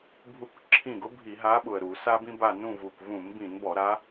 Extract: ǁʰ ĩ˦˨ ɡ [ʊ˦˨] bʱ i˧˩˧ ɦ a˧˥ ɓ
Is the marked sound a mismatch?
yes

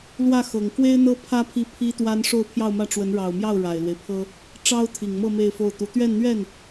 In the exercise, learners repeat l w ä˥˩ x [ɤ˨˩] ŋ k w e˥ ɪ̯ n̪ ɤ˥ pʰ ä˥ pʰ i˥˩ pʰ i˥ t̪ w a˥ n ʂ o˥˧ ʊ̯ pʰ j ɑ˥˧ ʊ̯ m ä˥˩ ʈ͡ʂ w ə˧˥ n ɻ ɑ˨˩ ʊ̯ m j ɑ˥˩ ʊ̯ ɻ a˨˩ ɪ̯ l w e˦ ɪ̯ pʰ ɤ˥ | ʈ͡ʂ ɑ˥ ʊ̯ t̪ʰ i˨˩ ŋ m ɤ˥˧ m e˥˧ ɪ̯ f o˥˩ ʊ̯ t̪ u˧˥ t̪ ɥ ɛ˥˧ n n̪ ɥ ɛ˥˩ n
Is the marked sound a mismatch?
no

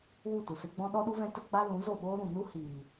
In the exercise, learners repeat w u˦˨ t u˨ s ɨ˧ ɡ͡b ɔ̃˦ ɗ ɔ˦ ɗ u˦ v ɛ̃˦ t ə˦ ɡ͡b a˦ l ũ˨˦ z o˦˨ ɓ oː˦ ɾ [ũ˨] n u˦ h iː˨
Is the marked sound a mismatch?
no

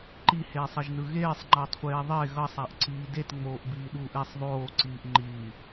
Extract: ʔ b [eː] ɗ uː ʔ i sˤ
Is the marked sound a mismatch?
yes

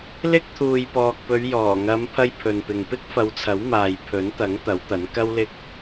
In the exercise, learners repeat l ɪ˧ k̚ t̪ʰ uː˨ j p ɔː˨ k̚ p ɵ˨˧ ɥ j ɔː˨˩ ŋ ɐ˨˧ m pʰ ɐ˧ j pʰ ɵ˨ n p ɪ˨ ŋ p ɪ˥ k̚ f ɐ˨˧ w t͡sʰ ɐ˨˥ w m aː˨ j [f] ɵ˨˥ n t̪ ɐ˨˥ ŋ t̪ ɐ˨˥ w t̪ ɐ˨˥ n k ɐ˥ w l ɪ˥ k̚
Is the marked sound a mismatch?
yes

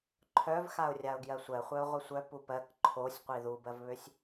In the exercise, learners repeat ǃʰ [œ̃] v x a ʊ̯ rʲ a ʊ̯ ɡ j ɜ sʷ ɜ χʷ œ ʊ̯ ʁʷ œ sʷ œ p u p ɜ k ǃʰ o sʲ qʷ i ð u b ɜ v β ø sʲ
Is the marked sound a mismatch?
yes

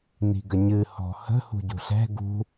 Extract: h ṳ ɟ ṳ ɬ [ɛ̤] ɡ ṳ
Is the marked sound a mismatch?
no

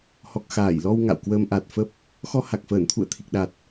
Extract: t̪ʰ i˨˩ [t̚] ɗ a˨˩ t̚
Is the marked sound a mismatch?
yes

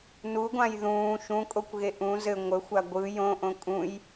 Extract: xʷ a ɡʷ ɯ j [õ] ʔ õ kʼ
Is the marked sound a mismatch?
no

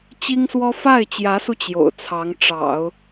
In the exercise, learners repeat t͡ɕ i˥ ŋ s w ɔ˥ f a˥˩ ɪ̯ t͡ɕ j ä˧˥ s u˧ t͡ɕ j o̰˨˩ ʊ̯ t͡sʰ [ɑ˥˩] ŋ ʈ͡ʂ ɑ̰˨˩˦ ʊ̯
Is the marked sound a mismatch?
yes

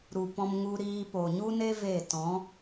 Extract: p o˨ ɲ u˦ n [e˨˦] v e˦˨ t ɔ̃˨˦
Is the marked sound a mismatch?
yes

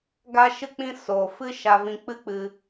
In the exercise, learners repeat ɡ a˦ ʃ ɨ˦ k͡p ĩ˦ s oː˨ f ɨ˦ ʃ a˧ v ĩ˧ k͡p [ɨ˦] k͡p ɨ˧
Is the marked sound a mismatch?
no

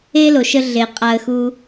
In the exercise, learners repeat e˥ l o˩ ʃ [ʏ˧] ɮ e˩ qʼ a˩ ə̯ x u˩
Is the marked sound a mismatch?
yes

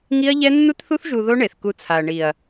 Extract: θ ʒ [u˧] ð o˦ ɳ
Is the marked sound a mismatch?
no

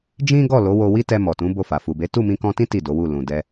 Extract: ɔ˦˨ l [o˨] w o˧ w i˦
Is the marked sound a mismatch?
yes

